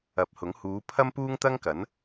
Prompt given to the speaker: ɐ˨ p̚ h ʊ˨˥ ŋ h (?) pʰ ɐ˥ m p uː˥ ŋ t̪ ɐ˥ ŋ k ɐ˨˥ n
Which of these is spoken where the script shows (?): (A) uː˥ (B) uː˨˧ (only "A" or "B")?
B